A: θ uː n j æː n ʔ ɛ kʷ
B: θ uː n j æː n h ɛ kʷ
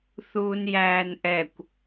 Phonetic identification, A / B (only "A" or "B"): A